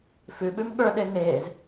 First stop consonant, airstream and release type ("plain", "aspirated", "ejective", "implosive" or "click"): implosive